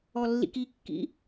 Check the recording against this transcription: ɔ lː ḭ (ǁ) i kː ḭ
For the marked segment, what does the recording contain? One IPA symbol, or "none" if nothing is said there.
k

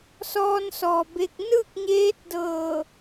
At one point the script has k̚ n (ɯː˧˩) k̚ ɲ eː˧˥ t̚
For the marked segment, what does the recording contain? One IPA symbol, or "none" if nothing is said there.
ɯː˥˨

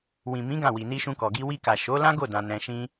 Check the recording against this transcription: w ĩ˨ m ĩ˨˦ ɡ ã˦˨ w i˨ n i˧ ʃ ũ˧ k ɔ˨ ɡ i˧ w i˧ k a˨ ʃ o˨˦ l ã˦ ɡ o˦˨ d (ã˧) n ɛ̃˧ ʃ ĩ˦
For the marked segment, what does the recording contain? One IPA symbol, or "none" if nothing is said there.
ã˧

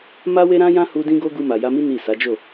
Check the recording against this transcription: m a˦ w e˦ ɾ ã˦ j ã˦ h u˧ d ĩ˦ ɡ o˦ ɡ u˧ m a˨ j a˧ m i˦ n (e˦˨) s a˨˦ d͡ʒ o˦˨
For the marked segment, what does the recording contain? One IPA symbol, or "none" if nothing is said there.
i˦˨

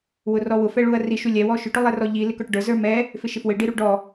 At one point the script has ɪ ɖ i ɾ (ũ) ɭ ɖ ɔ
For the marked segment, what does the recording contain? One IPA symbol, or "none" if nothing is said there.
u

